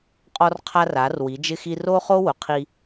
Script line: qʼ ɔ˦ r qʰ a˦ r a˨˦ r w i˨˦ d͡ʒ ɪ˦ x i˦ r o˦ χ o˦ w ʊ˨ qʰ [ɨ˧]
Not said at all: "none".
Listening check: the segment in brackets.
i˧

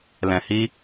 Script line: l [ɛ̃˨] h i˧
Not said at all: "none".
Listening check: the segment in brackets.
ɛ̃˨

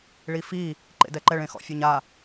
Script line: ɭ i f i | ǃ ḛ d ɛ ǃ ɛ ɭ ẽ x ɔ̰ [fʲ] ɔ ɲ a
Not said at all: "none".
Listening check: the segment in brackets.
fʲ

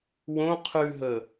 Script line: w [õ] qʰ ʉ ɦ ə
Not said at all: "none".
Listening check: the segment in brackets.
õ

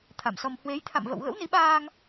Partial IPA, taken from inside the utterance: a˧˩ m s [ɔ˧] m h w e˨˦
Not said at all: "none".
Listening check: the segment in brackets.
ɔ˧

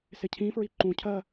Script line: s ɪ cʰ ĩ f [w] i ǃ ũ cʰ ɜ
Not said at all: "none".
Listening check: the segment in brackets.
ɹ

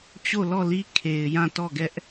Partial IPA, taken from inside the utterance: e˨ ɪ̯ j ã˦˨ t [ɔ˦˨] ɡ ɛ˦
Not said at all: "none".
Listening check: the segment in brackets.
ɔ˦˨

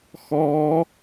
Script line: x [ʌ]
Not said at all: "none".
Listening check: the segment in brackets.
ɔ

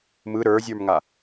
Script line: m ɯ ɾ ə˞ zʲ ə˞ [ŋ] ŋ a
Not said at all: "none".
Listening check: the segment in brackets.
m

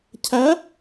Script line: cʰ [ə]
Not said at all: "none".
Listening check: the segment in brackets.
æ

